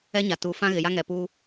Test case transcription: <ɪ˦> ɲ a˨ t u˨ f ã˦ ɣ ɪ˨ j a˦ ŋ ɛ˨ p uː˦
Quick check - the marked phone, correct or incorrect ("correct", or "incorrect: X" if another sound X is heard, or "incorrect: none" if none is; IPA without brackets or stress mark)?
incorrect: ɛ˦